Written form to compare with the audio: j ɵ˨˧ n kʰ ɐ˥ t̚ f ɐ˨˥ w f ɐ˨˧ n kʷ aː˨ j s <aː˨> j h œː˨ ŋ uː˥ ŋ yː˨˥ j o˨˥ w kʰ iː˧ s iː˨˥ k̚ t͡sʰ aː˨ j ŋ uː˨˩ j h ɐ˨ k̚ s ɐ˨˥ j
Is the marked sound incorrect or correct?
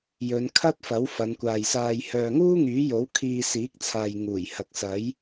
correct